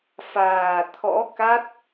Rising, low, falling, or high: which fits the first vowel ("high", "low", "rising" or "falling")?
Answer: low